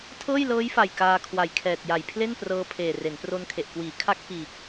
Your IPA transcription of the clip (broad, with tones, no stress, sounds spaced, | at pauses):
tʰ ɤː˥˩ j l ɤː˦˥ j f a˨˩ j k aː˧ kʰ w a˨˩ j kʰ ɛː˨˩ t̚ j a˨˩ j pʰ l e˥˩ n p r ɤː˧ pʰ eː˨˩ r e˩˦ n p r o˧ n kʰ e˨˩ ʔ k w iː˩˦ kʰ a˦˥ k̚ f iː˨˩ k̚